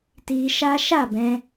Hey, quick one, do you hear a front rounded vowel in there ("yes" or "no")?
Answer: no